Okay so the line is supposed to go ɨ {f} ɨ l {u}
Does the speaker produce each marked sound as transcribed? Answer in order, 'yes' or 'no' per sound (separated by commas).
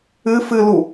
yes, yes